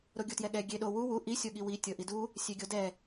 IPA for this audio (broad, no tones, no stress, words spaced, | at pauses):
ɾoɡʲutjɛɠɛ ɡʲeɗo wu wu ʔi sʲoɠiwi tʲɤʔidu | sʲeɡʲodɛ